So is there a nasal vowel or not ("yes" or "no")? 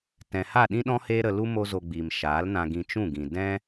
yes